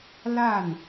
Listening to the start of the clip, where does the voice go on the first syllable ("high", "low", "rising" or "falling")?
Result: falling